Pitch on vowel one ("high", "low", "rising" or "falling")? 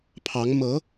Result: rising